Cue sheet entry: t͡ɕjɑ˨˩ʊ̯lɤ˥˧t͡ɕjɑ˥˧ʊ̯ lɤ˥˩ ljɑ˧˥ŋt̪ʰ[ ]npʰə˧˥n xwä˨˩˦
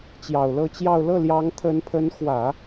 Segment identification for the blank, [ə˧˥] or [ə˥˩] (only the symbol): ə˧˥